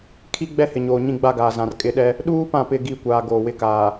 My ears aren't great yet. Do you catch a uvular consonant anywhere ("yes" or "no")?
no